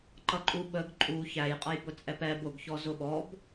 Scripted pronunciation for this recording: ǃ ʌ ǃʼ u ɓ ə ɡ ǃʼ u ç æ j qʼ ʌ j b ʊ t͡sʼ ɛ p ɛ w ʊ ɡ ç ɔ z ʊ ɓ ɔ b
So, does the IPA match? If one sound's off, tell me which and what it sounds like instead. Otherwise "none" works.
w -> b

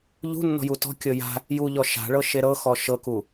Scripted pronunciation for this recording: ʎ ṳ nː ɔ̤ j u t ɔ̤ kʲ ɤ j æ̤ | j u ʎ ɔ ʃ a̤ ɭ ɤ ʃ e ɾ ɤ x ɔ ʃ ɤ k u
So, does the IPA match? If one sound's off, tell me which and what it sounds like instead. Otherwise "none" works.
æ̤ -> a̤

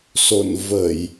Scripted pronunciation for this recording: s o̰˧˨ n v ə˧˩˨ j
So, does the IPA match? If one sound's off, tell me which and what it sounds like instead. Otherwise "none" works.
none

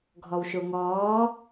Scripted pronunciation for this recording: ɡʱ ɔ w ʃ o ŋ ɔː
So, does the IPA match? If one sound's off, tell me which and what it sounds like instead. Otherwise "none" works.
none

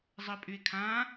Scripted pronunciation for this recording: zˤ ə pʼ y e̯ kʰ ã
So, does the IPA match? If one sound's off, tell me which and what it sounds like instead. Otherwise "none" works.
none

